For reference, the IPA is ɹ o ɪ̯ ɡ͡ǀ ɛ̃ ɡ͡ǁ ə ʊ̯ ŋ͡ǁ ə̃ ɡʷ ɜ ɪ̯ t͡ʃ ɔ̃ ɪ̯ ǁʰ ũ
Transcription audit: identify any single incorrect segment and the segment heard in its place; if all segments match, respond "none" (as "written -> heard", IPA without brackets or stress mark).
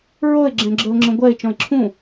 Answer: ɡ͡ǀ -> ɡ͡ǁ